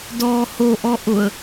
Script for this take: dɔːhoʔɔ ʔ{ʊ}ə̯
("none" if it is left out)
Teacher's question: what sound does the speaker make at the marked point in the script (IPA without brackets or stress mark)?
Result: ʊ